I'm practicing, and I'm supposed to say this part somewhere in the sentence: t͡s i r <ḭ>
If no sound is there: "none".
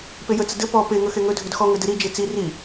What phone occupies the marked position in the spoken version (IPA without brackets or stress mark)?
i